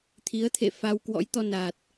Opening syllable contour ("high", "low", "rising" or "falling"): rising